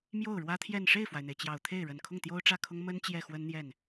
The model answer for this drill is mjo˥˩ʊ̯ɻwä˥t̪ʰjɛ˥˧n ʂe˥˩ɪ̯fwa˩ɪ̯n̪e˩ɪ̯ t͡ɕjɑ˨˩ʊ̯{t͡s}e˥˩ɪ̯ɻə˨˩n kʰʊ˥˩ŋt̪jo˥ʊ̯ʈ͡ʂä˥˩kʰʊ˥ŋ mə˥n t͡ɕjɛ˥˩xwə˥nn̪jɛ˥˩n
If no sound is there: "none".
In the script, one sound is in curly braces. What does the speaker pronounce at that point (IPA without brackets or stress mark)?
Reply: t̪ʰ